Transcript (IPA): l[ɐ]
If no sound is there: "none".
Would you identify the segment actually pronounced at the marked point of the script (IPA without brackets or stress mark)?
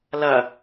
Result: ɐ